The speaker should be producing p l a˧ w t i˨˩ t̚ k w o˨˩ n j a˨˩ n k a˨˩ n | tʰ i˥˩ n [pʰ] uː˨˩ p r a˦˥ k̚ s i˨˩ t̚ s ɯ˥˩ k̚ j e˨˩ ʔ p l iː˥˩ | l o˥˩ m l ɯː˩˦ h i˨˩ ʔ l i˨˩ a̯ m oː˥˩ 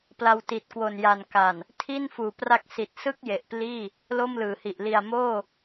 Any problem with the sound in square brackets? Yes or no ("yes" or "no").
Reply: yes